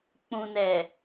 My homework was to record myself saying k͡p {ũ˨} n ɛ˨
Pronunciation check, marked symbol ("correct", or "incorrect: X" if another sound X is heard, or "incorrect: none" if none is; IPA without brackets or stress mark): correct